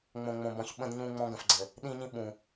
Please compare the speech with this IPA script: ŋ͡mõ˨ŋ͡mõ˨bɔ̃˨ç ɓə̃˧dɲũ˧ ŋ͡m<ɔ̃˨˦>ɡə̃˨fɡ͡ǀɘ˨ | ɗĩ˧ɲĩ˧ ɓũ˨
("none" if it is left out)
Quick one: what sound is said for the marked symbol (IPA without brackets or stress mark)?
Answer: ɔ̃˧